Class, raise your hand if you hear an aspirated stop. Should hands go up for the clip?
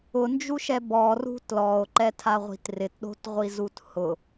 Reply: yes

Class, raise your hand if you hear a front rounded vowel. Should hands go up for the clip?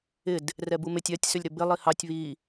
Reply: yes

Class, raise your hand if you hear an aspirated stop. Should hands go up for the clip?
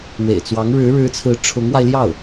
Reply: yes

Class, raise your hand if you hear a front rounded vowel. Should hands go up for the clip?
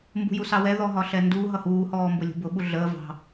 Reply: no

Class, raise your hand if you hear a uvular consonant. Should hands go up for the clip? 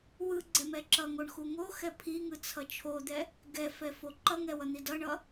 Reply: no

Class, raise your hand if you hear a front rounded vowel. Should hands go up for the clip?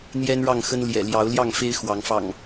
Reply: no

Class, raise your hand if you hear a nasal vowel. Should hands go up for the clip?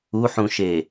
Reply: yes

